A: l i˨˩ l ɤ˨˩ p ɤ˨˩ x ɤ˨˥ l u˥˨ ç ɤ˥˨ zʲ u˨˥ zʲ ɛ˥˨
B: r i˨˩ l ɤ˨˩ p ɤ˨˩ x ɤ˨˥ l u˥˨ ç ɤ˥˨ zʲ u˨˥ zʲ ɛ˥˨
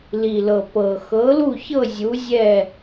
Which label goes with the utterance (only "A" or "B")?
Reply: A